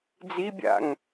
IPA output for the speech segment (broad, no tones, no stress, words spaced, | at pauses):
d͡zibʲa̰ŋ